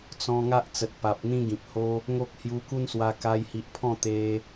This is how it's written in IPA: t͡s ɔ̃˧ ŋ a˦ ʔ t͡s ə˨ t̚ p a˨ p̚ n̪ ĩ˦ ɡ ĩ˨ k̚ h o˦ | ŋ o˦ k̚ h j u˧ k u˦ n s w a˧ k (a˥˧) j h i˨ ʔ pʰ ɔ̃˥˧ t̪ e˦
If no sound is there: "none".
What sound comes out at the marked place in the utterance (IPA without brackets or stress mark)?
a˧